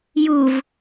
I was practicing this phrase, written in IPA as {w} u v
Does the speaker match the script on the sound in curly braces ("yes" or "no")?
no